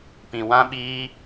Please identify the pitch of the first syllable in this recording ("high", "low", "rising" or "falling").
low